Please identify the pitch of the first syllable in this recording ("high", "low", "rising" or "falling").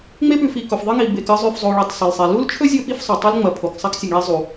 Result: high